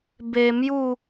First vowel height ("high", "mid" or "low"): mid